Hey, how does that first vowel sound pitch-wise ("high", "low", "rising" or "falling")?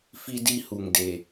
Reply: low